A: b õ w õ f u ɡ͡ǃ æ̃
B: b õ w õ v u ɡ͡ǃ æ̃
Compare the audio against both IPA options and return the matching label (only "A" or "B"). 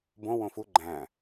A